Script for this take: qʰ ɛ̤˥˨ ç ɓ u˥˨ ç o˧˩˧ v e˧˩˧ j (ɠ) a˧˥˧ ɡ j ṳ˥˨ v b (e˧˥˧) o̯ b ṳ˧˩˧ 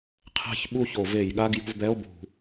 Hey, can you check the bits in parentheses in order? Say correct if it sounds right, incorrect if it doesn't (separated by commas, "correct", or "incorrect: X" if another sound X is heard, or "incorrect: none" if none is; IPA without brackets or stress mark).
correct, incorrect: ɛ˧˥˧